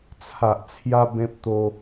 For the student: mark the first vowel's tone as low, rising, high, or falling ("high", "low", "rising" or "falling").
low